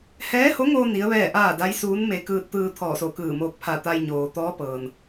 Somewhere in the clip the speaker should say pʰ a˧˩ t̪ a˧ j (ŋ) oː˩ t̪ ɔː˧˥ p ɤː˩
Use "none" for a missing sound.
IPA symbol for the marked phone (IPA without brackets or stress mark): ɲ